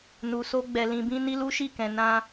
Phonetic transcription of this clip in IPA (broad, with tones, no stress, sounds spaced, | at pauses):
n u˨ s o˧ ɡ͡b ɛ˨ l ĩ˨ b ĩ˧ n i˦ l u˦ ʃ i˦˨ k ɛ̃˨ n ã˧